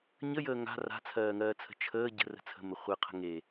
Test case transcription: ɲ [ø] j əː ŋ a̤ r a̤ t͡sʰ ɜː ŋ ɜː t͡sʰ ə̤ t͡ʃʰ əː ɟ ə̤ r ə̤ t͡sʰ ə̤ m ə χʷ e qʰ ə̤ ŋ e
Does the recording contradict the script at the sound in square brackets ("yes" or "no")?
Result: yes